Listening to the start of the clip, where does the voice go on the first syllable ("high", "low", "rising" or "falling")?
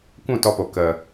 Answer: falling